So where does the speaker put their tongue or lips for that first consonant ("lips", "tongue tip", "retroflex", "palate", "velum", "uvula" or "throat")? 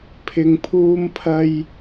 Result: lips